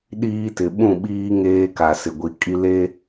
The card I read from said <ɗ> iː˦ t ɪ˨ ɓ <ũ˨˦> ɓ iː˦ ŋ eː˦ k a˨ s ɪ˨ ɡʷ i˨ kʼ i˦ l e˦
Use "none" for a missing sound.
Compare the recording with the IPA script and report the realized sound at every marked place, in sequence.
ɗ, ũ˦˨

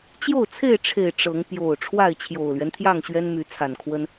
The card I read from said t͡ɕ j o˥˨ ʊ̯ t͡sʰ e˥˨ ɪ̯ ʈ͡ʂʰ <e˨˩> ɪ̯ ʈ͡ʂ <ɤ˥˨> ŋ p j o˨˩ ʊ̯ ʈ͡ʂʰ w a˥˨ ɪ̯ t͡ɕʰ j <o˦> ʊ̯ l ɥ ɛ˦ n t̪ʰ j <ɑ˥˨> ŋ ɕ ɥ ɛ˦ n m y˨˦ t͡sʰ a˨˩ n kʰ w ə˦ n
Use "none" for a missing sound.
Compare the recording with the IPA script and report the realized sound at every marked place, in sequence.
e˨˩, ɤ˨˦, o˨˩, ɑ˥˨

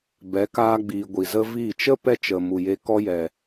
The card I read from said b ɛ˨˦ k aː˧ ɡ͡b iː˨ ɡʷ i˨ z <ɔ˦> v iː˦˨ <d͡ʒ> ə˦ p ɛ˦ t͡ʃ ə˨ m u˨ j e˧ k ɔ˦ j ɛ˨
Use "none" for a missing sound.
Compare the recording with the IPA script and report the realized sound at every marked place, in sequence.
ə˦, t͡ʃ

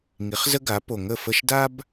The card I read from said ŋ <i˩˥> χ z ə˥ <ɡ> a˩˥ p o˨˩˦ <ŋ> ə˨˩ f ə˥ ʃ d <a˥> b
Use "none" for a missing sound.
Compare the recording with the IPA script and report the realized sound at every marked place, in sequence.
i˩˥, ɡ, ŋ, a˥

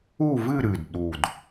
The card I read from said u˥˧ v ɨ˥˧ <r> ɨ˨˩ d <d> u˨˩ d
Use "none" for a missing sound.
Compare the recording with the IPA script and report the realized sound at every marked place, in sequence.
ɾ, ɗ

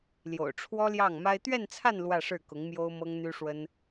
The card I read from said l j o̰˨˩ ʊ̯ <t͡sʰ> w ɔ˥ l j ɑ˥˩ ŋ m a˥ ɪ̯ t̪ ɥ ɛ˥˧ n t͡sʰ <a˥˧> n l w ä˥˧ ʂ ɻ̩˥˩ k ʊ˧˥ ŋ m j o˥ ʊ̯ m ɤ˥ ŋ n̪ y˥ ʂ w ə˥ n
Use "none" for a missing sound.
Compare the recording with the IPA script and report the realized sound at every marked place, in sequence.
ʈ͡ʂʰ, a˥˧

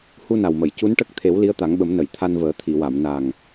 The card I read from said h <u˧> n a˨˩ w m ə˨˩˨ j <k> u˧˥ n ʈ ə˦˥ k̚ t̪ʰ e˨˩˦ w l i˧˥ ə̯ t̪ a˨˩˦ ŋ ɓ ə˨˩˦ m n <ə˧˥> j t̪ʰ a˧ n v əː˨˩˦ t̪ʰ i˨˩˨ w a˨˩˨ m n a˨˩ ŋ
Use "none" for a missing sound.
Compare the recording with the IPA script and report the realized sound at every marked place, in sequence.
u˧, c, ə˨˩˨

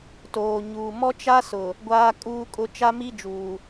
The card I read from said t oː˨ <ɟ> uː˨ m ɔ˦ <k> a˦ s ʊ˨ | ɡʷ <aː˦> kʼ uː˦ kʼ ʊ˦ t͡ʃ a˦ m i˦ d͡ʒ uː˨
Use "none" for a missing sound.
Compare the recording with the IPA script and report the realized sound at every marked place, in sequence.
ɲ, t͡ʃ, aː˦

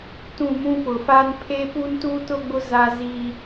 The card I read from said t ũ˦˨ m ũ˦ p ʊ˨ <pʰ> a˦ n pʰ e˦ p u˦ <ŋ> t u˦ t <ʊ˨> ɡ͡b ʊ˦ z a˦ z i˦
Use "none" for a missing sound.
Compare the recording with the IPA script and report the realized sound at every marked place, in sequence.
f, n, ʊ˦

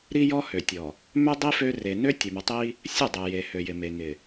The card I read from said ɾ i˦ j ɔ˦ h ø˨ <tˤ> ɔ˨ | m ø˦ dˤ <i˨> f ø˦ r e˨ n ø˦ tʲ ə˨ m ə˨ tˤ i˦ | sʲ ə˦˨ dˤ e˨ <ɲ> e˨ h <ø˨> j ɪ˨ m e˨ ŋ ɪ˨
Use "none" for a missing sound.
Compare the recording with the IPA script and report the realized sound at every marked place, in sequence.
tʲ, i˦, j, ø˨

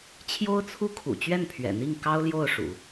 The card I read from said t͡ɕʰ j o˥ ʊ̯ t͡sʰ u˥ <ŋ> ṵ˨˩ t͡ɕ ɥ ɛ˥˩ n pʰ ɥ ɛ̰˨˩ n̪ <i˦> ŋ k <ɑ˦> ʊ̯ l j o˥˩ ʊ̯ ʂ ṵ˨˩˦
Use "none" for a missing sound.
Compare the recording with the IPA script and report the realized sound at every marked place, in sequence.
kʰ, i˥˩, ɑ˥

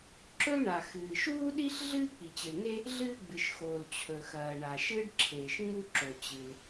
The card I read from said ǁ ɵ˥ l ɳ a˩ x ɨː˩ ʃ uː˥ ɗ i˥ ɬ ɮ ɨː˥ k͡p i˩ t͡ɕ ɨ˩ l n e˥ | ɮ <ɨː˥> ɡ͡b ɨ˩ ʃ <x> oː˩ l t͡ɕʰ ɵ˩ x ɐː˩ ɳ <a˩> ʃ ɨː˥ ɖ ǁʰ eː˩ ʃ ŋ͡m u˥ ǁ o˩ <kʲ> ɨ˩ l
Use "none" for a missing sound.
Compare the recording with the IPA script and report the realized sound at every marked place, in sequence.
ɨː˥, x, a˩, t͡ɕ

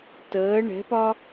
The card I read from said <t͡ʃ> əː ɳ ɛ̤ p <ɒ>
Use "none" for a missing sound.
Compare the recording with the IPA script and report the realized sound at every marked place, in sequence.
t, ɒ

